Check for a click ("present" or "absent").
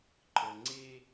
present